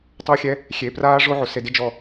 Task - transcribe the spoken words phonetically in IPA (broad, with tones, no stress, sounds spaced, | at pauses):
tˤ u˧ xʲ ɛ˧ | xʲ e˨ p r aː˦ ʐ o˦ ʕ o˨ s e˧ d ɪ˦ d͡ʒ ɔ˦˨